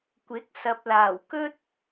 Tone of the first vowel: rising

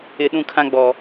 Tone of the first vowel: low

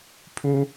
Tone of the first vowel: high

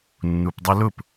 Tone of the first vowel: low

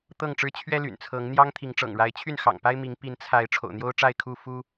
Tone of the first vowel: falling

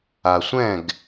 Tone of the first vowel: low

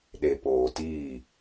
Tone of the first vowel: low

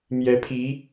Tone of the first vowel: rising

